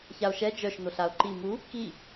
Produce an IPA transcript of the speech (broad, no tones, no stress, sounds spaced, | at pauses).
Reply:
ç a o̯ ʃ ɛ d͡ʒ œ ʃ n o ɬ a o̯ ǃ i m u | k i